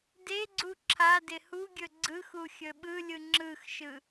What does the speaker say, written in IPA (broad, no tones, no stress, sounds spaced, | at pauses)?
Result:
d e ɡ͡ǀ u ǁʰ a d ɪ h u ɡʲ ɵ ɡ͡ǀ ɯ x u xʲ ɵ ɓ ɯ lʲ ɯ ŋ͡ǁ ɯ x ʃ ɯ